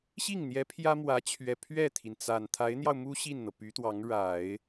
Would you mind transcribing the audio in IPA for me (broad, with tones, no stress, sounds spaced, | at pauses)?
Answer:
ɕ i˥˩ ŋ n̪ j ɛ˧˥ pʰ j ä˥ m w ä˧˥ t͡ɕʰ ɥ ɛ˨˩ pʰ ɥ ɛ˥˩ t̪ʰ i˩ n t͡s a˨˩ n t̪ʰ a˧˥ ɪ̯ n̪ j ɑ˧ ʊ̯ m u˥ ɕ i˥˩ n n̪ ɤ˩ p y˧˥ t̪ w ɑ˧˥ ŋ ɻ a˨˩˦ ɪ̯